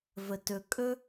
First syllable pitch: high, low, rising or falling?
low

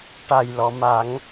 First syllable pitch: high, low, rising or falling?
low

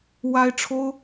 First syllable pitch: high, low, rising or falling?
high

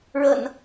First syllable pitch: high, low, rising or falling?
low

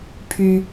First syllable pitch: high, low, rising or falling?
high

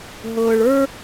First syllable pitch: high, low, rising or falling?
low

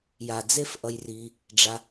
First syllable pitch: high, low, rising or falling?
low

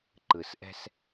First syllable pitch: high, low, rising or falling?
low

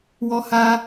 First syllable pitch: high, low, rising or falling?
high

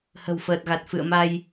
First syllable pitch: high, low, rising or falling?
low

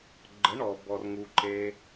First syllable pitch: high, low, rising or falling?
rising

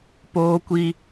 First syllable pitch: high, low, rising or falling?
high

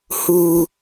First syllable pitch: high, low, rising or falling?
high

